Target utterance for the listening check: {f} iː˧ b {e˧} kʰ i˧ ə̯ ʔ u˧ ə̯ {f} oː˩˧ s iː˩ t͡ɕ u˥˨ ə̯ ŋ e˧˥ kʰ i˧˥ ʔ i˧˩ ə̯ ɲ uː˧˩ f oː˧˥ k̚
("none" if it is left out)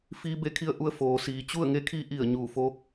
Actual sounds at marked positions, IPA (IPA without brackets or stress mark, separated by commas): f, e˧, f